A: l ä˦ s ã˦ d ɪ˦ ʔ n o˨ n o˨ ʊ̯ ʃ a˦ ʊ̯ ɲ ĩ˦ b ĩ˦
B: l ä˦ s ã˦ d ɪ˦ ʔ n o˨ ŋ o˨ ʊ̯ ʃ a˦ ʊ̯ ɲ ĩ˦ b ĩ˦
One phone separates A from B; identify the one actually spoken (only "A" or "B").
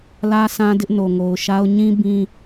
B